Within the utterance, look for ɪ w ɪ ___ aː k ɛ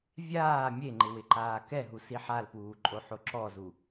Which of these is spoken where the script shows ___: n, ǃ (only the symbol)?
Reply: ǃ